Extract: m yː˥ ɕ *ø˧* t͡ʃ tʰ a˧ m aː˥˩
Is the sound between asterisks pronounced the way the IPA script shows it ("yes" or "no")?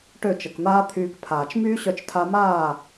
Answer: no